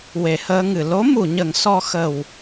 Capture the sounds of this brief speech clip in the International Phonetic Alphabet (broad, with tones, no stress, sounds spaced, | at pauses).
w e˨˩˨ h əː˧ ŋ ɨ˨˩˨ l o˧˥ m u˨˩˨ ɲ ə˨˩˦ ŋ s ɔ˧ x ə˨˩ w